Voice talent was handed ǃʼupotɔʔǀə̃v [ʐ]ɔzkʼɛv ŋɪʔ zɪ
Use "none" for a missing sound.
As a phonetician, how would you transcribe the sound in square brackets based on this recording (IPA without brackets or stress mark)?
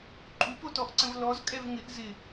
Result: l